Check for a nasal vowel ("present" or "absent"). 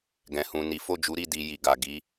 present